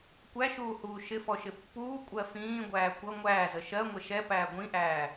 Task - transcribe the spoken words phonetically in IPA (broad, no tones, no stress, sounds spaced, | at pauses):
kʷ æ ʃ uː h uː ʃ ɪ f ɔ ʃ ɪ pː uː kʷʼ ɜ f ĩː ɡʷ æː kʷ ʌ ŋʷ æː z ə ʃ ɜ ŋʷ ɪ ʃ ɛ p æː ɡʷ ĩ ʔ æː